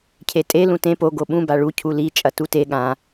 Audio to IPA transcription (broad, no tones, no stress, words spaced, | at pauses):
cʰetʼe lũtẽ po ɡoɓũ baɭu cʰuli t͡ʃʼɐtute ɠã